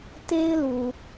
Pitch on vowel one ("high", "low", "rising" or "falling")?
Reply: high